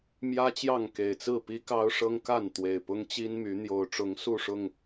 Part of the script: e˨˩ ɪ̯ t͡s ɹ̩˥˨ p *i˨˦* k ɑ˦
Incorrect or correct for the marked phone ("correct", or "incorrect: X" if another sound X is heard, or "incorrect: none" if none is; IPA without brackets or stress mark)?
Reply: incorrect: i˦